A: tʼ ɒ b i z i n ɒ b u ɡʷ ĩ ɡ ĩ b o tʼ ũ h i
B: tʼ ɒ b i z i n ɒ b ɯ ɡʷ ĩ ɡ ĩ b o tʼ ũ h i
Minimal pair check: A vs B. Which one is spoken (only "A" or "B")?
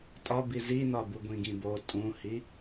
A